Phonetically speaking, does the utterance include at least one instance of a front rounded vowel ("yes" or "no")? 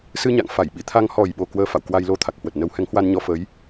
no